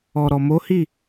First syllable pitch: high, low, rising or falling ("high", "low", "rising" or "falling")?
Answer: low